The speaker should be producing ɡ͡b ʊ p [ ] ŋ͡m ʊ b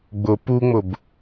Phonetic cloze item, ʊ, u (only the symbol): u